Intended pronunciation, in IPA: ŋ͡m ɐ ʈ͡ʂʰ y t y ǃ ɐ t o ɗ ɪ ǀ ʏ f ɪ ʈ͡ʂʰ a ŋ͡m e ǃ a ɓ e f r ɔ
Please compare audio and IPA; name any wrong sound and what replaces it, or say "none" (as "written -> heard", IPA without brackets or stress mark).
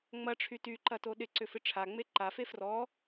ɓ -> f